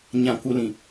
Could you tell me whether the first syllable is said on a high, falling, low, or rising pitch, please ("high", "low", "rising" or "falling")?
low